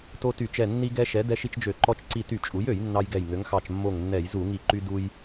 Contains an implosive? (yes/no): no